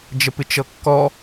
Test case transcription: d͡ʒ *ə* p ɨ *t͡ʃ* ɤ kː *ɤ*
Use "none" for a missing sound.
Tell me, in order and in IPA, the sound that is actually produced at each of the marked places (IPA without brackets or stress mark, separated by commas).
ə, t͡ʃ, ɔ